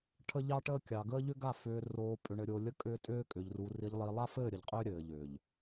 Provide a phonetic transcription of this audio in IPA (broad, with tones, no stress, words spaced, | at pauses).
ʈʰə˦ʎɑ˦ʈəː˦kʲɑ˨ ɡəː˦ʎʏ˦ɡa˦˨ fʏː˨roː˨ pʼʏ˨ɳɘ˨ɾʲo˨ lʲə˦kʼʏː˦tʼʏː˦ kʼʏ˨ʎru˨ ri˨ʎlˠi˨lˠa˦fɘː˦˨ ɾʲə˨ʎqʼʏː˦ɾʲɘː˨ ʎʏː˨ʎ